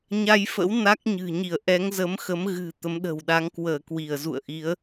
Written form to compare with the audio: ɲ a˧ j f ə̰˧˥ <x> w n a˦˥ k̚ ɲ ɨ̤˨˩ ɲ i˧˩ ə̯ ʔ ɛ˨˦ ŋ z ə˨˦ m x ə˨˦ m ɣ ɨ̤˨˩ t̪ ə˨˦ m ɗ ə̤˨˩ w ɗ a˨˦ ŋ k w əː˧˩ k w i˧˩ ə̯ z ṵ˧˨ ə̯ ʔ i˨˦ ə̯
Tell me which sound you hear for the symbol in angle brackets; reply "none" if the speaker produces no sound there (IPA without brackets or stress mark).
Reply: none